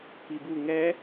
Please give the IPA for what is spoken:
p i b u ŋ ɛ

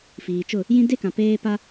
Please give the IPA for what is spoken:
f iː˨ t͡ʃ ʊ˦˨ | j ĩ˦ d e˦ k ã˨ p eː˦ p a˦

